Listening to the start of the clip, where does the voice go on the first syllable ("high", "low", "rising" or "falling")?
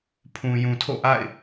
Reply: low